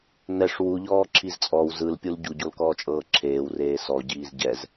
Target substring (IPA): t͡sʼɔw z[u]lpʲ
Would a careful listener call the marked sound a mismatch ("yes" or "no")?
yes